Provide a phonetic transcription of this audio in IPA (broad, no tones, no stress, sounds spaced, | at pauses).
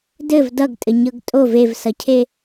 d ɘ v d ʌ ɡ tʼ ɘ ɲ ɤ ɡ tʼ o v e v s ʌ cʰ e